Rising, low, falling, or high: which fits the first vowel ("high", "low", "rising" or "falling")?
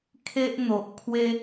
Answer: high